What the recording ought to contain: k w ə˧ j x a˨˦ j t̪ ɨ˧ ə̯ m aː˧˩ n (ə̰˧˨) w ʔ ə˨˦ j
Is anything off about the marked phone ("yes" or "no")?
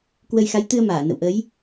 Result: no